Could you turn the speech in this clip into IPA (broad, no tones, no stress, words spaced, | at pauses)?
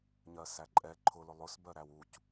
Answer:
ɲɜsæǃʼɛ ǃʰʊlʊ lˠʊsbɜ ɾæwuc